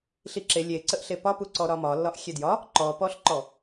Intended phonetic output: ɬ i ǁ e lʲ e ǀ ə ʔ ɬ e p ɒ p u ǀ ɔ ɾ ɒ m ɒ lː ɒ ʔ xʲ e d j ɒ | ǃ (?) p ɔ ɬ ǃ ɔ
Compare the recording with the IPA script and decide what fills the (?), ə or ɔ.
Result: ɔ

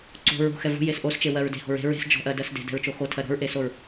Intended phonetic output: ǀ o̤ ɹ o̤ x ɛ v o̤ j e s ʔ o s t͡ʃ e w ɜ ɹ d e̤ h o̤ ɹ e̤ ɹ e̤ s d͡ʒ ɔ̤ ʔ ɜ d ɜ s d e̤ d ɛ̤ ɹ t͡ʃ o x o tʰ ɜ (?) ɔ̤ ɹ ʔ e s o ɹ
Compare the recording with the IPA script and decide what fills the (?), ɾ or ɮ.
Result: ɾ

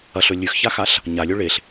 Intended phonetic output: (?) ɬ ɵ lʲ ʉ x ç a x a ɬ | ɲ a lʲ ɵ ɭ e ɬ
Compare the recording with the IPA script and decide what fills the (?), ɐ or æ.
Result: ɐ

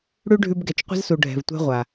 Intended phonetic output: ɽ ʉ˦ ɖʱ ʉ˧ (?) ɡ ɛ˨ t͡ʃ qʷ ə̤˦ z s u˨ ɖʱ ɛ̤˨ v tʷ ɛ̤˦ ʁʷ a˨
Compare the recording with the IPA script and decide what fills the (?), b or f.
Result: b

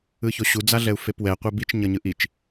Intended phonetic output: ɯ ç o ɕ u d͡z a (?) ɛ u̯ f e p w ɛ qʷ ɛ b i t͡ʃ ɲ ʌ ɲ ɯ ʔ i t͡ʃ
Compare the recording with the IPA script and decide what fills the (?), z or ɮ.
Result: ɮ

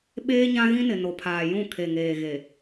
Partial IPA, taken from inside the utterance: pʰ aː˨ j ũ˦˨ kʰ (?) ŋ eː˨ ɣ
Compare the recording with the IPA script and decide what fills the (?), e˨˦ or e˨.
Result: e˨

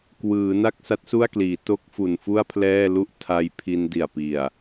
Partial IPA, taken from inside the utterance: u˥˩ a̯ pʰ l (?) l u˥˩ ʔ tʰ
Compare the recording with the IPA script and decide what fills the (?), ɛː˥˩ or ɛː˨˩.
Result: ɛː˥˩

